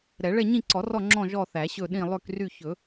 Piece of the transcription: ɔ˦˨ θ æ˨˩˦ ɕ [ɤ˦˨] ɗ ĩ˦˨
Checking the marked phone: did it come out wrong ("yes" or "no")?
yes